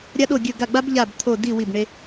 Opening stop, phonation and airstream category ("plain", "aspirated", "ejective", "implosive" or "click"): implosive